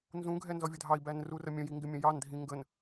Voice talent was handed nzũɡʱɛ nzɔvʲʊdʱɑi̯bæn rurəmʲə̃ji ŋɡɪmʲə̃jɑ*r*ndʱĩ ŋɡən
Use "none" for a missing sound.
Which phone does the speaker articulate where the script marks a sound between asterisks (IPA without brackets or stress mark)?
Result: none